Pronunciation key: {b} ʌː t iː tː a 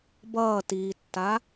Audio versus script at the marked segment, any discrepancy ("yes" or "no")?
no